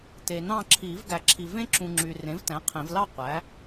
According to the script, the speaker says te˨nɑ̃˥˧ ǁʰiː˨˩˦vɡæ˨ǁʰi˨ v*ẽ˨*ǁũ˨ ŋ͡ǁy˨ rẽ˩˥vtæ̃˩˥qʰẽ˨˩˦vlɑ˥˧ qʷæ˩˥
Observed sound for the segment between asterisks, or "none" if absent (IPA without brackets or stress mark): ẽ˦˥